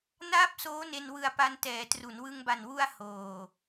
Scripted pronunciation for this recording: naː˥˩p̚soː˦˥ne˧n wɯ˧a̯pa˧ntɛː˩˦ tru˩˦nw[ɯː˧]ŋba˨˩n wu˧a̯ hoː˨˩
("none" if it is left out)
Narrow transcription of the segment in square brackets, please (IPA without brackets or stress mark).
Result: ɯ˧